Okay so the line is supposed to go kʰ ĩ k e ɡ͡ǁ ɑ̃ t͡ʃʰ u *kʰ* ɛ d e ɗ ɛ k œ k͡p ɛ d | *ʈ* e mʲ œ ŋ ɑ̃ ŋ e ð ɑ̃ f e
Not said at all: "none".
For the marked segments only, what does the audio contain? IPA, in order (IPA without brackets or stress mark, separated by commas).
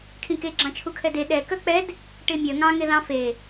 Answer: kʰ, ʈ